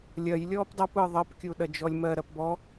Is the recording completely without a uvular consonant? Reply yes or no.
yes